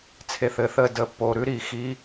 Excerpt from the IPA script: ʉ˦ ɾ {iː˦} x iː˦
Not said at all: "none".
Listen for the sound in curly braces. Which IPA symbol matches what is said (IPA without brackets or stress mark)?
iː˨